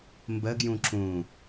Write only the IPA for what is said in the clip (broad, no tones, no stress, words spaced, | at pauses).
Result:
mbəɡjũ ǁũ